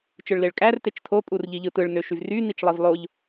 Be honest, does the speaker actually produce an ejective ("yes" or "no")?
yes